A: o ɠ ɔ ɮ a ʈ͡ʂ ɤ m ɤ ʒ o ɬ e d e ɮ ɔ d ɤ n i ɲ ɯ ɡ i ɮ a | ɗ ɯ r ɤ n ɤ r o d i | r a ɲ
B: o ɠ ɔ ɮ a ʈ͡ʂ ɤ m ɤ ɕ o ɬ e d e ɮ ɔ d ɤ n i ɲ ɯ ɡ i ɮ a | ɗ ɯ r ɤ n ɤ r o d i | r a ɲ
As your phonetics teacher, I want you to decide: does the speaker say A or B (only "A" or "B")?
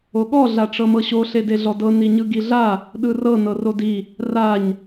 B